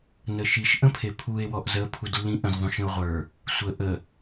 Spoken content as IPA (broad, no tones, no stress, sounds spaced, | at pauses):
n ə ʃ i ʃ ʔ ə̃ pʰ e pʰ u e̯ w ɔ ʔ z ə pʰ u d lː ĩ ʔ ə̃ z ðˤ ũ ʃ ə̃ o̯ ʁʷ ə˞ | sʷ ə ʔ ə